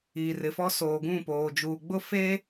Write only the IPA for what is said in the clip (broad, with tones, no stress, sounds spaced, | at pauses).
iː˨ r ɪ˨ f ɔ˦ s oː˨ ɡ ũ˦˨ p oː˨ d͡ʒ uː˨ ɡ͡b ʊ˦ f eː˦